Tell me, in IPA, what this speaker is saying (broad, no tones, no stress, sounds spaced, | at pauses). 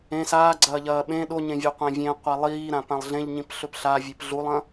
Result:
ẽ s aː ɡ͡ǀ ɐː ʎ ɐː ɓ ẽ ɗ o ɲ ẽ vʲ o qʷ ẽ vʲ ẽ qʷ a lˠ iː ɾ ã p ã lˠ ɮ ẽ ʎ ɲ ĩ p ɬ ɵ p ɬ a vʲ e p ɮ u lˠ ɐ̃